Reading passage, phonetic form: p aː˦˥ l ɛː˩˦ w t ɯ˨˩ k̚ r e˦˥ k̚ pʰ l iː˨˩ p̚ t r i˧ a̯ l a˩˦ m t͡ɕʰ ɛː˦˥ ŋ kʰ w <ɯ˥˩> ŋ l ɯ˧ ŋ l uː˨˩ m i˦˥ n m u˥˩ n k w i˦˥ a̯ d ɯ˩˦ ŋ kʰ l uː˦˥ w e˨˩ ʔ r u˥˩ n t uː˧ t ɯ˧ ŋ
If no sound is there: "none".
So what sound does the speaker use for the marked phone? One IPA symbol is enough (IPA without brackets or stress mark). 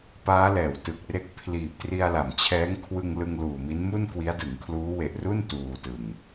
ɯ˧